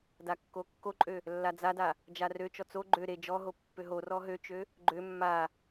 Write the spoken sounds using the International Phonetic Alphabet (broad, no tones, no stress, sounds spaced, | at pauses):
d a kː o kː o ǃʼ ø | lː a d͡z a d a | d͡ʒ a r ø t͡ʃ ɔ t͡s o ɡ͡ǃ ø ɾ e d͡ʒ ɔ ɦ o pː ø ɦ o r ɔ ɦ ø t͡ʃ ø | ɡ͡ǃ ø mː a